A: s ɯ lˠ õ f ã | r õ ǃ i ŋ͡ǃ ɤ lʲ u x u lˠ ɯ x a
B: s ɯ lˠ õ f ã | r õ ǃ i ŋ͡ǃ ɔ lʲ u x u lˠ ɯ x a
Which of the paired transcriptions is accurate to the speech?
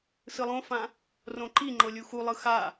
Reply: A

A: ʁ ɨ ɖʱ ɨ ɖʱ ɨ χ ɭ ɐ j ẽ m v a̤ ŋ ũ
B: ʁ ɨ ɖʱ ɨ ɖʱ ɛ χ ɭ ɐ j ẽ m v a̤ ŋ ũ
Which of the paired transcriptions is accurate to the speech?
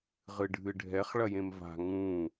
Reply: B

